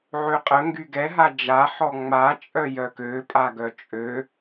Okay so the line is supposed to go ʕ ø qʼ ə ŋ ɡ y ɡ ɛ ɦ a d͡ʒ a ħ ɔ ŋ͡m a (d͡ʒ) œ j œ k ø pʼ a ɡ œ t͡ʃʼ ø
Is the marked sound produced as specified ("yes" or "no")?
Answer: no